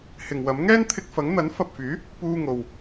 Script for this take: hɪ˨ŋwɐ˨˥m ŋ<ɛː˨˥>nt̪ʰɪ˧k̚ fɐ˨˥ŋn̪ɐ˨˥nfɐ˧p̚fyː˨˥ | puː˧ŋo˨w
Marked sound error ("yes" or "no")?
yes